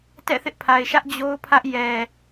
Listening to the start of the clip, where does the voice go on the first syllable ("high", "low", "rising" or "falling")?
falling